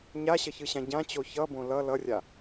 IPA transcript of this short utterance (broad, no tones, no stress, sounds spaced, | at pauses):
ɲ a ɕ ʌ ç ɯ ɕ ã ɟ ã t͡ɕ o ç ʌ b õ l ʌ l ʌ rʲ a